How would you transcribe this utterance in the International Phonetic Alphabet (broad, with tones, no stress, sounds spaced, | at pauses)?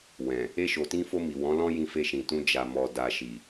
w ɛ̃˨ | e˧ ʃ o˨ t ĩ˧ f o˧ m i˨ w ɔ̃˨˦ l ɔ̃˦ j ĩ˧ f e˧ ʃ ĩ˨ t ũ˧ d͡ʒ a˨ m ɔ˨ d a˨ ʃ i˨